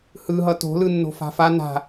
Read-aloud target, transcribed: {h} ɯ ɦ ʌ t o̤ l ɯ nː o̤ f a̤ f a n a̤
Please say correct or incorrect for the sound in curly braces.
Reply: correct